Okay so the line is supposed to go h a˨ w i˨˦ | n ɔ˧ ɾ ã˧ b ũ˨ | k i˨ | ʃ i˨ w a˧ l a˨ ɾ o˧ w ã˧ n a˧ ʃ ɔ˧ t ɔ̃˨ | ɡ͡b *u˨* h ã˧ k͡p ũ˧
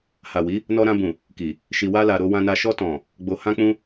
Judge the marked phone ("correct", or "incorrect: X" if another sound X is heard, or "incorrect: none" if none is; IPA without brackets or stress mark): incorrect: o˨